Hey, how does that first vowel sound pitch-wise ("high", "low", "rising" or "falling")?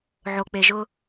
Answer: low